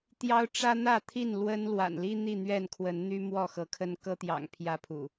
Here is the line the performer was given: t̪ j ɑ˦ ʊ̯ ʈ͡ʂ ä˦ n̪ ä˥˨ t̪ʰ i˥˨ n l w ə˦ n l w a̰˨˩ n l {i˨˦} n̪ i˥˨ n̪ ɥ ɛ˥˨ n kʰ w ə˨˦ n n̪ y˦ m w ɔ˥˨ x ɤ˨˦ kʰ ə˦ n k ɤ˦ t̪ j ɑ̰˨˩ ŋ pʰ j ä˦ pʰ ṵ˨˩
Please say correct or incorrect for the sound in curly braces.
incorrect